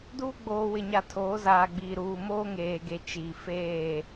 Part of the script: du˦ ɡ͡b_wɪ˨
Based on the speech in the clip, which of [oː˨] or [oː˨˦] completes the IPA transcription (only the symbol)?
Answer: oː˨